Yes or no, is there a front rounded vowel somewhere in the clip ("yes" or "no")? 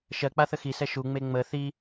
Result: no